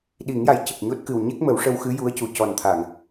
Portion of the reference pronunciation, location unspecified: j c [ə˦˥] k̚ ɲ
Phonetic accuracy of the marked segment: incorrect: ə˨˩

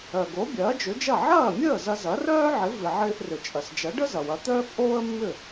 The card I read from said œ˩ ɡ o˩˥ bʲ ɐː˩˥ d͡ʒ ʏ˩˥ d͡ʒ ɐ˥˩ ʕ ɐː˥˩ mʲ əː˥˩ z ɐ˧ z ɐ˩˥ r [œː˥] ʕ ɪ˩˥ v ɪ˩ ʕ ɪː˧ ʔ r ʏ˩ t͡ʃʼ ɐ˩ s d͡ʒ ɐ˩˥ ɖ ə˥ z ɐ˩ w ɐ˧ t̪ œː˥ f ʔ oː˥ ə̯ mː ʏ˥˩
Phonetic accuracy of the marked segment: correct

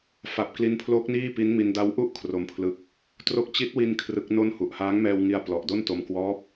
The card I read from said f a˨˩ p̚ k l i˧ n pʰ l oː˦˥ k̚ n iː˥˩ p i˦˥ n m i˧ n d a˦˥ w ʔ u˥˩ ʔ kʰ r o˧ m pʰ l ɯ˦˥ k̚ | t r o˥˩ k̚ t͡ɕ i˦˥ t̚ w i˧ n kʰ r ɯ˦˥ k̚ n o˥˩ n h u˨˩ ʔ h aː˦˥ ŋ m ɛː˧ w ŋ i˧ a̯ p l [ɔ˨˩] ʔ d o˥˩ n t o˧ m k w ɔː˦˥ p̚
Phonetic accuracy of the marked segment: correct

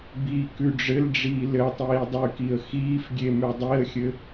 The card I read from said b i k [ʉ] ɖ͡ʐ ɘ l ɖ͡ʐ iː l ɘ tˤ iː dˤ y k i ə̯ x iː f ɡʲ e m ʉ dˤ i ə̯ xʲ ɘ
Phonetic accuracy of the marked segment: correct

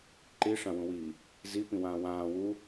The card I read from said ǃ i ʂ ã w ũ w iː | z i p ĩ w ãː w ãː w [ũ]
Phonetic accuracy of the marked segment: incorrect: u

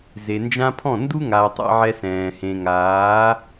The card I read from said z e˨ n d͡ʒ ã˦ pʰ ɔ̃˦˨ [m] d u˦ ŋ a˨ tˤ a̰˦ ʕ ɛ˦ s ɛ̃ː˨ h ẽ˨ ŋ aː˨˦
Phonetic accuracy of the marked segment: incorrect: n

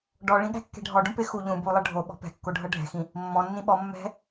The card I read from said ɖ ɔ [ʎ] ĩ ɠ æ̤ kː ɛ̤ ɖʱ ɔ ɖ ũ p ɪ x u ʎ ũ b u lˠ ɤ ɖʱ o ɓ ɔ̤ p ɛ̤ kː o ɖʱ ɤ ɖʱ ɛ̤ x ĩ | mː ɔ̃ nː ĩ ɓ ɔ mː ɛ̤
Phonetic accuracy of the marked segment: incorrect: ɭ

